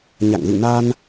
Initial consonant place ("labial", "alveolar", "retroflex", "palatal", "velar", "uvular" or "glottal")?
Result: palatal